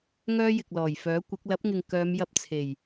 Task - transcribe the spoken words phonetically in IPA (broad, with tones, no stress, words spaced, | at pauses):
ŋœː˥jɪ˨k̚lɔː˨˩jfœː˨˥ kʷɪ˨˥k̚ lɐ˨˥p̚ŋɪ˨ŋ kœː˨˧m jɐ˧p̚t͡sʰe˨˩j